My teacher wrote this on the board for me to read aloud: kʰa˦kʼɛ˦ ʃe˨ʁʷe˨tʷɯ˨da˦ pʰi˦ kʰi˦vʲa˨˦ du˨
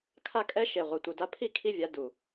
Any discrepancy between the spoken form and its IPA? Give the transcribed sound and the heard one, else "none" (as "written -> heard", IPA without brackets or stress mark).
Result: none